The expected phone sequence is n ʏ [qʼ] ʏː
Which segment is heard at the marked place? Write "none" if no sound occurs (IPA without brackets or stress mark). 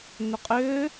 qʼ